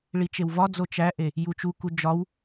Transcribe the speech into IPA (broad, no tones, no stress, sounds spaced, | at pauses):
ɭ i t͡ʃ e w v ɒ d͡z o t͡ʃ æ ʔ e | j u t͡ʃ u k u d͡ʒ ɒ w